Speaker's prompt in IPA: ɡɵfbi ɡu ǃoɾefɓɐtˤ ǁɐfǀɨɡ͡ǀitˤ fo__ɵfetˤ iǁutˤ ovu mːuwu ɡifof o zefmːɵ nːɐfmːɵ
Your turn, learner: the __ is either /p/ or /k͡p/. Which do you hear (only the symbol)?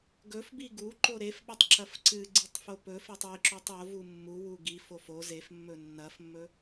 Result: p